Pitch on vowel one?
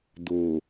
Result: low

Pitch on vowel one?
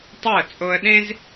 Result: falling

